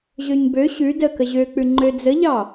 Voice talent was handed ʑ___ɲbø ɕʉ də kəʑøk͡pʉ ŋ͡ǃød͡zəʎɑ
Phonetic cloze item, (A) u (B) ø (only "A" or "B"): B